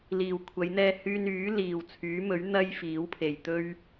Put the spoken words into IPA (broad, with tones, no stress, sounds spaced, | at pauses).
l iː˨ w kʷʰ ɐ˨˧ j n̪ ɛː˧ h yː˧ n yː˨˥ l iː˨ w t͡sʰ yː˨˥ m ɵ˨˥ ɥ n̪ ɐ˥ j f iː˨˥ w pʰ e˨ j t̪ ɵ˧ ɥ